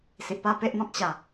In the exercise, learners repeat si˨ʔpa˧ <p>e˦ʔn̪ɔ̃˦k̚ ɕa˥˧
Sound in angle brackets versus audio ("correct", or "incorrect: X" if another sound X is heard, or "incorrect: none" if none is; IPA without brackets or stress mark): correct